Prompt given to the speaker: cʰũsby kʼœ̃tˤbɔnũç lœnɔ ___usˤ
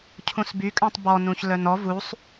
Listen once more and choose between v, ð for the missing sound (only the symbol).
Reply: v